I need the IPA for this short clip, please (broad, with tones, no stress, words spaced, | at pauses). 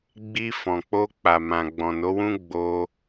ɡ͡bi˧fɔ̃˨k͡po˧k͡pa˨ mã˨ɡ͡bɔ̃˨no˨˦wũ˦ ɡ͡bo˧